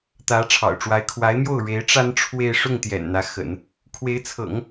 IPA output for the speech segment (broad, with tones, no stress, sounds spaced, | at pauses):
t̪ ä˧˥ ʈ͡ʂʰ ɑ̰˨˩ ʊ̯ ʈ͡ʂ w a˧˥ ɪ̯ kʰ w a˧˥ ɪ̯ m j o˥˩ ʊ̯ ɻ e˧˥ ɪ̯ ʈ͡ʂ a˥ n ʈ͡ʂʰ w e˥˧ ɪ̯ ʂ ʊ˥˩ ŋ t̪ j ɛ̰˨˩ n n̪ ä˧˥ x ə̰˨˩˦ n | kʰ w e˧˥ ɪ̯ t͡sʰ ɤ̰˨˩˦ ŋ